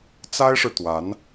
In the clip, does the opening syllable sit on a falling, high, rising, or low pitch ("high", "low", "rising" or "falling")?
high